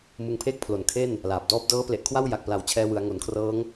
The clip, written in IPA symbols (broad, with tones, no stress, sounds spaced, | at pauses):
m ɯ˧ ŋ pʰ eː˥˩ k̚ pʰ l o˨˩ n kʰ e˥˩ n | l aː˨˩ p̚ d ɔː˥˩ p̚ d ɤː˦˥ p l e˨˩ ʔ kʰ w a˥˩ w j a˨˩ k̚ p l a˩˦ w t͡ɕʰ ɛː˧ w ɯ˩˦ a̯ ŋ o˩˦ n kʰ r ɤː˦˥ ŋ